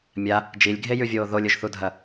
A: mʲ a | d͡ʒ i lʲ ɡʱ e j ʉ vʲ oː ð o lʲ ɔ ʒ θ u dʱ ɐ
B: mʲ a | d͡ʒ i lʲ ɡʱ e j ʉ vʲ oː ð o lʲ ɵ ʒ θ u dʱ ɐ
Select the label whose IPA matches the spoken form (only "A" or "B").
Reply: B